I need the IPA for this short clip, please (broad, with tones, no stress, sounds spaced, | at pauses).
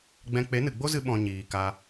ɡ͡b ɛ̃˦ k͡p e˨˦ n ɨ˨ ɡ͡b o˦ z ɨ˧ ɓ ɔ̃˨ ɲ iː˨ k a˧